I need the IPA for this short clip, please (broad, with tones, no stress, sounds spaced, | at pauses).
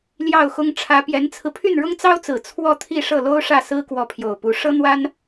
l j ɑ˥˩ ʊ̯ x ʊ˥ ŋ ʈ͡ʂʰ ä˧˥ p j ɛ˧˥ n t͡sʰ ɹ̩˧ pʰ y˥˩ n ɻ ʊ˥ ŋ t͡s ɑ˥ ʊ̯ t͡s ɹ̩˨˩ t͡sʰ w ɔ˥˧ t̪ʰ i˥˧ ʂ ɤ˥˩ l o˥ ʊ̯ ʂ ä˥˩ s ɹ̩˥ k w ɔ˧˥ pʰ j o˨˩ ʊ̯ p u˧˥ ʂ ɤ˥ n̪ w a˥ n